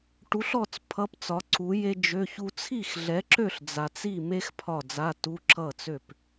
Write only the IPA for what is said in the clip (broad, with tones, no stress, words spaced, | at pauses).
ʈu˨˥ɬɔ˥˨t͡s pʰʌ˧˥˧pt͡sɒ˨˥ǀu˨˥je˥ d͡ʒø˧˥˧çu˥ t͡sʰi˥˨xɮɛ˨˥ǁø˥˨ɬ d͡za˨t͡si˥˨me˥x pʰɒ˥˨ d͡za˧˥˧tu˧˥˧ ǁʌ˥˨t͡sø˥˨p